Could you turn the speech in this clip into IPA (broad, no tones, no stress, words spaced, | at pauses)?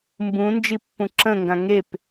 mbũ nd͡ʒipːũǁə̃ŋɡã ŋep